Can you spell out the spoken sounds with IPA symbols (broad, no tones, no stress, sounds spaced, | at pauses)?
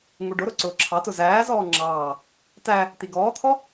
ŋ u ɖ ʊ ɾ ʊ ǀ ʊː ǁʰ ɑ t ʊ z æː z ɔː ŋ͡ǁ ɑː | t æ | t̪ i ɡ ɔː t̪ʰ ɔ